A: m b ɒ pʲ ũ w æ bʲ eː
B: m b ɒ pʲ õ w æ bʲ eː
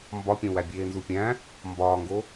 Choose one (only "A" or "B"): B